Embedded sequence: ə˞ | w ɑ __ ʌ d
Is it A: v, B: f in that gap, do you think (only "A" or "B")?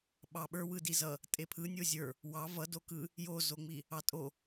A